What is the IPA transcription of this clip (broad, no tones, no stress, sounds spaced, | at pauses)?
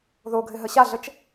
ð o ɡʱ ɘ ɦ ə ɕ a ɮ ə t͡ʃ